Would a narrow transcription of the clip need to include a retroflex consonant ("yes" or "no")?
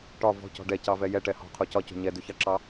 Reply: yes